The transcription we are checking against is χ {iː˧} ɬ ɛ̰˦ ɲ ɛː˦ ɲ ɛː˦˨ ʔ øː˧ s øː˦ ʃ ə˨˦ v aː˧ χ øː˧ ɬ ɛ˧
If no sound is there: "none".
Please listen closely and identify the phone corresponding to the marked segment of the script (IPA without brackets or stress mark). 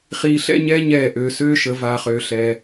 iː˧